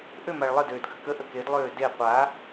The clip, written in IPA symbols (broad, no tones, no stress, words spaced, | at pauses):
ʔømaɭ lˠə døːdɡʱəkəʔə kedlˠøː de qʷa